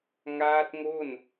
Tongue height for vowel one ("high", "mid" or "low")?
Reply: low